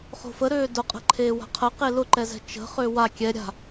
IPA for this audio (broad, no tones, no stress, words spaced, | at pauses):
χo̤fəɾøː dʊqʼə̤ ǃʰeːwa̤qʰə qelʊǃɛzɛ̤ t͡ʃə̤χø wa kʲɛ ɾʲa̤